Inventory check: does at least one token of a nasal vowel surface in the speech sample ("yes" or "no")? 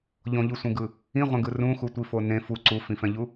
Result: yes